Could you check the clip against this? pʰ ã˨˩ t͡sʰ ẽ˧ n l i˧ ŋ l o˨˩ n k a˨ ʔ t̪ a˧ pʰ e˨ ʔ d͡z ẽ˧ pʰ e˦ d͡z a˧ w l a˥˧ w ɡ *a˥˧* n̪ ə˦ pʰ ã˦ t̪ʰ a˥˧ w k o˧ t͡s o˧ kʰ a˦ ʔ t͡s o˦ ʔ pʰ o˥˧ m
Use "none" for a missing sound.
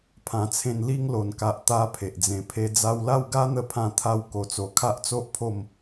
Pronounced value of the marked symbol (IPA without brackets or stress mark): a˦